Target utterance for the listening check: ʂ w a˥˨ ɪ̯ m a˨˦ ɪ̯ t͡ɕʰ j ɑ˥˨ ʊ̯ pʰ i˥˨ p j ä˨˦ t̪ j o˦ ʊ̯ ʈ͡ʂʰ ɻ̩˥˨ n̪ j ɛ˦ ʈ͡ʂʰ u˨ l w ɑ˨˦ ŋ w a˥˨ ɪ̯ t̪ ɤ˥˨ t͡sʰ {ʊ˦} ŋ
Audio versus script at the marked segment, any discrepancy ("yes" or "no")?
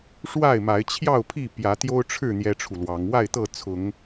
yes